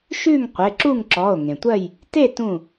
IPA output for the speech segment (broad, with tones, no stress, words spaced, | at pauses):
ʃʉ˥˨ŋqʷe˩˧˩ǁu˥˨ŋǁɔ˩˧˩o̯ ŋẽ˩tʷɜ˥˨j | te˥˨ tũ˧˩